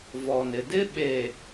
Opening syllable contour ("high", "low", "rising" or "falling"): low